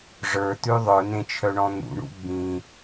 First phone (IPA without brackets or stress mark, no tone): ʐ